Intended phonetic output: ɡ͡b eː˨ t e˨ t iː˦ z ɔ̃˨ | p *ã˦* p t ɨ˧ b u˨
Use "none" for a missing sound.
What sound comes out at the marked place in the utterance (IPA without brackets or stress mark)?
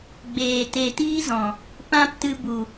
ã˦